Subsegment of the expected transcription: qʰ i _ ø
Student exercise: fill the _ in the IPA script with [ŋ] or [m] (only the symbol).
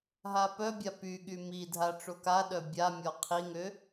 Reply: ŋ